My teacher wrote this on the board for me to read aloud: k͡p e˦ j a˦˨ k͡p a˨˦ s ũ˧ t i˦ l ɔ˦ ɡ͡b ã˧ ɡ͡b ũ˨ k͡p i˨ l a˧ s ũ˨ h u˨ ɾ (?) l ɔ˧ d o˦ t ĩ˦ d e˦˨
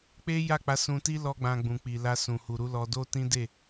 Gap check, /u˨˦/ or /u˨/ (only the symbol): u˨˦